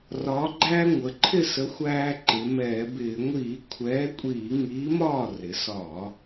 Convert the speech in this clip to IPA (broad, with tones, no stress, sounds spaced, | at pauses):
r ɒː˩˧ ɡ͡ǃ æː˧ ŋʷ ə˩˧ ǃʰ ɪ˥˩ s ə˨˥ xʷ æː˧ ǃ ɪ˩˧ m ɛː˧˩˧ b ɪː˧˩˧ ŋʷ iː˧˩˧ kʷʰ ɛː˨˥ kʷʼ iː˧˩˧ ŋ iː˨˥ m ɒː˥˩ r ɪ˩˧ s ɒː˧˩˧